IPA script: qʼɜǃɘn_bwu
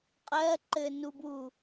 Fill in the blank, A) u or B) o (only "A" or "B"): A